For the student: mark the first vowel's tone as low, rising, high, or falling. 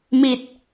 low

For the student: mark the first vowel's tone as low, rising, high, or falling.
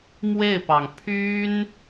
falling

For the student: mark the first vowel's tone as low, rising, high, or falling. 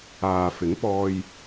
low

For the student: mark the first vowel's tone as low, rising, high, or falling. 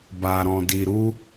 low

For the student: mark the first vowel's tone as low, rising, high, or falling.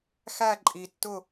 falling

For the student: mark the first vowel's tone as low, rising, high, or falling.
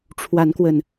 rising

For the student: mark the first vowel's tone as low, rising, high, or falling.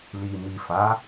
low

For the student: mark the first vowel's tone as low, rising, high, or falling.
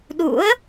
rising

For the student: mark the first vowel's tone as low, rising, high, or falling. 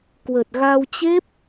low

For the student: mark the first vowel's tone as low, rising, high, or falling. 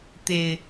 low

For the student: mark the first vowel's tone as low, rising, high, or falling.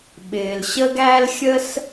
low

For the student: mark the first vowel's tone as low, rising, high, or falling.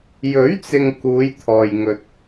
rising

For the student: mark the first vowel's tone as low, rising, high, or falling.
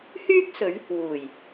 high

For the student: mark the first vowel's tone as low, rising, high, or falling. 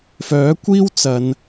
rising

